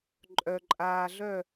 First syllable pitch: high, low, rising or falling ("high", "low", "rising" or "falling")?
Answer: low